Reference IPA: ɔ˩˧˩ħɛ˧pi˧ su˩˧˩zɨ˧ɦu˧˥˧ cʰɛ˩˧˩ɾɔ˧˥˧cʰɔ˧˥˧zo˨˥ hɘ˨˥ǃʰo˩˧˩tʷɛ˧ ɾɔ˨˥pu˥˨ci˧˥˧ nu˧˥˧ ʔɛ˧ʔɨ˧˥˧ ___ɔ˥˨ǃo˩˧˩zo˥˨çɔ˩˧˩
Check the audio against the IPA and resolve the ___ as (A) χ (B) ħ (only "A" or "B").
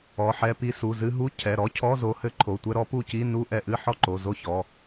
B